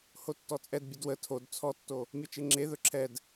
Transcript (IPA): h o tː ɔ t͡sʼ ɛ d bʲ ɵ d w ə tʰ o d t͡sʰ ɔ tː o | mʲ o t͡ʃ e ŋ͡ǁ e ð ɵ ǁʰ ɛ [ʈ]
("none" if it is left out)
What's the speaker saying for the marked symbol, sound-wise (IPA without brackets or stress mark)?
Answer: d